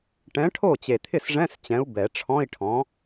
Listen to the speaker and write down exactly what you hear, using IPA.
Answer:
ʈ ɛ̃˨˥ ʈʰ o˥˩ t͡ɕ e˨˩ t̪ʰ ɪ˥˩ s ʐ ɛ̃˧˥˧ s t͡ɕ ɛ̃˨˥ u̯ b ɛ˨˩˦ ʈ͡ʂʰ ɔ̃˧˥˧ i̯ ʈʰ ɔ̃˨˥

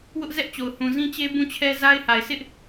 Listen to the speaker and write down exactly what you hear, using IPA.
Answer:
w ʊ˦ ʔ z ɛ˦ ʔ t͡ɕ o˨ ʊ̯ h ũ˨ z ĩ˦ t͡ɕ e˦ b ũ˦˨ t͡ɕʰ ɛ˦ z a˦ ɪ̯ h a˨ ɪ̯ s ɪ˦ ʔ

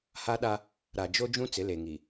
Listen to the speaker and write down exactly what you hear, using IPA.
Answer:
h a˦ ɗ a˦ | ɾ a˨ d͡ʒ o˦ d͡ʒ ũ˦ t͡s ɪ˨˦ l e˨ ŋ i˨

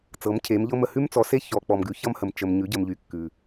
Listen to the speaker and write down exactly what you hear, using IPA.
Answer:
t͡s ɤ˨˥ m cʰ e˨˥ m ʎ ɤ˥ m ə˧ h ʉ˥ m t͡s ɔ˨˥ s e˥ ç ɔ˧ k͡p ɔ˧ m ɡ ʉ˨˥ ç ʌ˥ m h ə˧ m t͡ʃ ə˧ m ɲ ʉ˨˥ ɟ ə˧ m ʎ y˧ kː ʉ˧

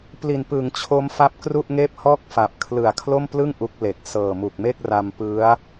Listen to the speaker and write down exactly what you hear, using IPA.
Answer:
p l i˨˩ n p ɯ˩˦ ŋ t͡ɕʰ o˦˥ m f a˦˥ p̚ k r u˥˩ ʔ ŋ eː˥˩ p̚ h ɔː˥˩ k̚ f a˨˩ p̚ kʰ l ɯ˨˩ a̯ kʰ l o˥˩ m p l ɯ˥˩ ŋ ʔ u˦˥ k̚ l e˨˩ k̚ s ɤː˨˩ m u˨˩ k̚ m e˥˩ k̚ r a˧ m p ɯ˦˥ a̯

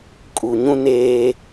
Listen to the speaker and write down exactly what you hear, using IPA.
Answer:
kʼ u˨ ɲ ũ˦ n eː˦

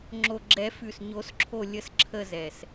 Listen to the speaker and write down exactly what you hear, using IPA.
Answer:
ŋ͡ǁ o˨˩ ɡ͡ǁ ɛ˨˩˦ f ʉ˨˩ s ɲ o˨˩˦ s ǁʰ o˦˨ lʲ ə˦˨ s ǁʰ ə˦˨ z ɛ˨˩ s

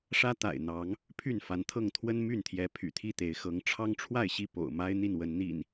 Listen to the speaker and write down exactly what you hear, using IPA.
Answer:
ʂ ä˦ t̪ a̰˨˩ ɪ̯ n̪ ɑ˨˦ ŋ | pʰ y˥˨ n f a˨˦ n t̪ʰ ɤ˥˨ ŋ t̪ʰ w ə˦ n m y˥˨ n t̪ʰ j ɛ˨˦ pʰ y̰˨˩ t̪ʰ i˥˨ t̪ e˨˦ ɪ̯ x ɤ˨˦ ŋ ʈ͡ʂʰ ɑ˦ ŋ ʈ͡ʂʰ w a˥˨ ɪ̯ ɕ i˥˨ p o̰˨˩ ʊ̯ m a˦ ɪ̯ n̪ i˥˨ n w ə˨˦ n n̪ ḭ˨˩ n

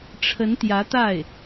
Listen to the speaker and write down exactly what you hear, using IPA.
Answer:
ʈ͡ʂʰ ə˧˥ n t̪ j ä˧˥ t̪ a˥˩ ɪ̯

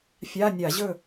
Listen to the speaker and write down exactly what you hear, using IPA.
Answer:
fʲ a˧˥˧ nʲ a˧˩˧ ʑ ɵ˥˨

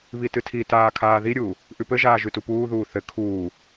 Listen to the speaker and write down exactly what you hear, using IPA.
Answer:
β i t ɨ tʰ i t aː kʰ aː ð i ɾʲ uː | ʔ ʉ p ɘ ʒ aː ʒ ʉ t u p uː ð uː θ ɘ kʰ uː

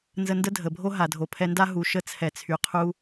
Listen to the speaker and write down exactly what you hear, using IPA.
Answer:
n z ə˧ n d ə˥ dʱ ə˩ bʱ o˥ ɦ a˩ dʱ o˩ pʰ ɛ˧ n d a˥ ɦ u˩ ʃ ə˧ t͡sʰ ɛ˩ t͡sʰ y˩ qʰ u˧

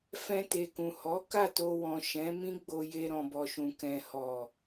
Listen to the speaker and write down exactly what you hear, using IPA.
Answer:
f ɛ̃˧ t e˨ k ũ˨ h ɔ˨˦ k a˦˨ t o˧ w ɔ̃˨ ʃ ɛ̃˨˦ m ĩ˦ ɡ͡b o˧ j e˧ ɾ ɔ̃˨ b ɔ˨ ʃ ũ˨ k ɛ̃˨ h ɔ˨

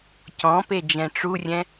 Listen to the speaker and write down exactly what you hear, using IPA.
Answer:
c ɔ̃ p e d͡ʒ ɛ̃ ʈ͡ʂ u rʲ ɛ̃

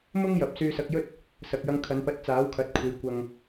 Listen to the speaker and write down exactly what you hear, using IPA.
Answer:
m ʊ˥ ŋ j ɐ˨ p̚ s yː˧ s ɐ˧ k̚ j ɵ˥ t̚ | s ɐ˨ k̚ j ɐ˧ ŋ kʰ ɐ˨˧ n p ɐ˧ t̚ t͡s aː˨˥ w kʰ ɐ˨˥ t̚ kʷʰ e˨˧ j kʷ ɐ˨ ŋ

